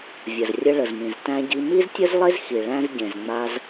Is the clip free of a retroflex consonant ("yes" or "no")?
no